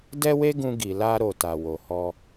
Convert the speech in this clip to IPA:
d ɛ˦ w e˦ ɡ ũ˧ ɡ i˨ l a˧ ɾ o˨ t a˨ w o˨ h ɔ˧

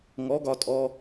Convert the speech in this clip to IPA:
ŋ ɔ˨˥ ɡ ɒ˧ tʼ ɔ˧

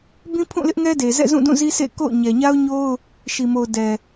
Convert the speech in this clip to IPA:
b ĩ˦ pʰ ũ˦˨ l ɪ˦ ʔ ŋ ɛ˦ d e˨ z ɛ̰˦˨ z ũ˦˨ d ũ˦˨ z i˦ sʰ ḛ˦˨ k o̰˦˨ ʊ̯ ɲ ɛ˨ ɲ a˦ ʊ̯ ɲ o˦ ʊ̯ | ʃ i˨ m o˨ ʊ̯ d ɛ˨

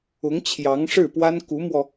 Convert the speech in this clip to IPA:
ʊ˧˥ ŋ t͡ɕʰ j ɑ˧˥ ŋ ʂ ɻ̩˥˩ p w a˥ n k u˧˥ m w ɔ˧

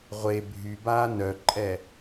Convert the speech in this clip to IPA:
ʁʷ e bʱ y b aː n œ ǃʼ ɛ

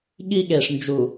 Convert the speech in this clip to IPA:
ɠ i˦ ɠ e˨ ʂ n d͡ʒ u˨

